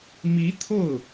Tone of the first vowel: rising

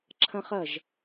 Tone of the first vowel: high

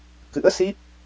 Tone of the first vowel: rising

